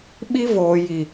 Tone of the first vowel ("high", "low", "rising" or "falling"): high